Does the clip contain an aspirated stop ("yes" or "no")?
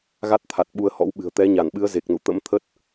yes